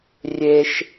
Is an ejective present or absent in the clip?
absent